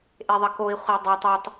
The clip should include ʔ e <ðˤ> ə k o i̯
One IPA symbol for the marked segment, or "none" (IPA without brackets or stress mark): ðˤ